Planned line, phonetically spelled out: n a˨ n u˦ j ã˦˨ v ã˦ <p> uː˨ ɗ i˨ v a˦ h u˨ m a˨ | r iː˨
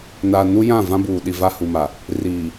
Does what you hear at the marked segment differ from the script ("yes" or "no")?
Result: yes